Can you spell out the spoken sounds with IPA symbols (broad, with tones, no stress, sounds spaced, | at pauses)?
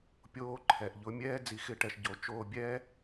pʲ oː˧ ǃʰ ɛ˨ ʔ ʎ ʊ˧ mʲ ɛː˦ d͡z i˧ x ɪ˧ ʈ ɛ˧ ʃ ɟ o˨˦ t͡ʃ oː˧ bʲ ɛ˦